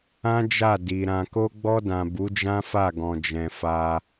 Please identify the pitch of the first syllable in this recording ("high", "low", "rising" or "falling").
high